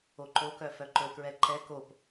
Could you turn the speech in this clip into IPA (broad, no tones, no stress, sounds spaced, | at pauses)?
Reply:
o ǃ o k œ f œ ǃ ɵ k ɹ ɛ ǃ ɛ k o p